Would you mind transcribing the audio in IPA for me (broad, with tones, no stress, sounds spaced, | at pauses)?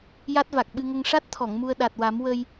j a˦˥ t̚ v a˨˩ k̚ ɓ ɨ˧ ŋ ə˧ ŋ ʂ a˦˥ t̚ t̪ʰ ɔ˨˩˨ ŋ m u˧ ə̯ ɗ a˨˩ t̚ w a˨˩˦ m w ə˧ j